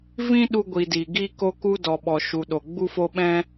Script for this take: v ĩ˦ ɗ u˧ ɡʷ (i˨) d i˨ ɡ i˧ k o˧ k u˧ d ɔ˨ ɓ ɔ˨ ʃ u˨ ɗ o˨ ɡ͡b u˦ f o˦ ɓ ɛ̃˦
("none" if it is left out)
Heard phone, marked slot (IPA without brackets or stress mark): i˨